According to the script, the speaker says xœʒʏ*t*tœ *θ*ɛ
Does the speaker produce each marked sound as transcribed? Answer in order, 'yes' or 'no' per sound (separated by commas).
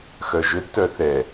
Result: no, yes